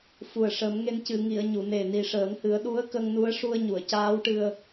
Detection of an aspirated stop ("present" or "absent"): absent